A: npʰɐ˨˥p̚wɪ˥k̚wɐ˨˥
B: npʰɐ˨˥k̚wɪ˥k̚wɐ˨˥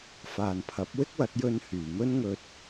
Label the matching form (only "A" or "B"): A